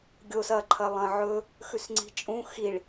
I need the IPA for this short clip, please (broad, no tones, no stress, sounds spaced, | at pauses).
ɡʲ o s ɐ ǃʰ ɐ lˠ ɐ̃ ʕ ɵ | x ʉ s ŋ͡ǀ i̤ t͡ʃʼ ũ x i ɭ